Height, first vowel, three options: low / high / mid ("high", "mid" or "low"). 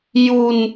high